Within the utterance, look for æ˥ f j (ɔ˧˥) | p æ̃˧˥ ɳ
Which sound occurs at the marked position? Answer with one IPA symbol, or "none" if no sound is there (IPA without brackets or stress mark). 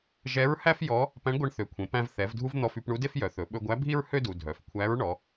ɔ˧˥